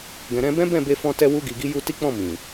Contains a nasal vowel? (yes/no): yes